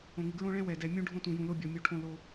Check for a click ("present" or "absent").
absent